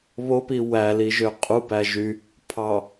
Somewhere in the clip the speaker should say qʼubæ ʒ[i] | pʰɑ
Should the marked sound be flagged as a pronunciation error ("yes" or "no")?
yes